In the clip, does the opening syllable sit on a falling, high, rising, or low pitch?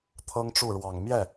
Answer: high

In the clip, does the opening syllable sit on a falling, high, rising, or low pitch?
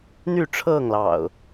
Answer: falling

